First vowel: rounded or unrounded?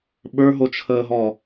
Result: unrounded